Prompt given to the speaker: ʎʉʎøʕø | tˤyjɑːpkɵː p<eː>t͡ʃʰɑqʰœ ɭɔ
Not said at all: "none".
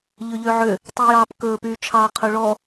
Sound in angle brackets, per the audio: yː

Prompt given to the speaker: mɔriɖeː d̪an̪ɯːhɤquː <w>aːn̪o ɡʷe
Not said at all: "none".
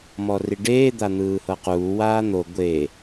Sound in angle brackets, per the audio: w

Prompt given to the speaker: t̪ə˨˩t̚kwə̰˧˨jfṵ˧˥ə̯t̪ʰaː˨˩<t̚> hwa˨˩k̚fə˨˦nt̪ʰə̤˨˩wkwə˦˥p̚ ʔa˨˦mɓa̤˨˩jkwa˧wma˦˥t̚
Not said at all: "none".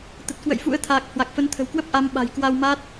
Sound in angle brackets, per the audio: k̚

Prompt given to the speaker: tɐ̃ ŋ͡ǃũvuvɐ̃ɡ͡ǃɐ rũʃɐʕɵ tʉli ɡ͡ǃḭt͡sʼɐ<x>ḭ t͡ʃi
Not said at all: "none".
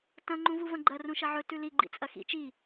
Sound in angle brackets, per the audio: x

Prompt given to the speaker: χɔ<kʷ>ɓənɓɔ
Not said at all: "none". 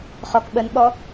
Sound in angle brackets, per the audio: k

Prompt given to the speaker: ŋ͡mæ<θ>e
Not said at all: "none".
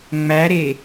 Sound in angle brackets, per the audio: ɾ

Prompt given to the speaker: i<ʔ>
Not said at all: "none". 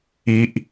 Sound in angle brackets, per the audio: ʔ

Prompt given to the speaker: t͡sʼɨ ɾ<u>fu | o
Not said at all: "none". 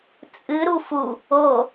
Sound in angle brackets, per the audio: u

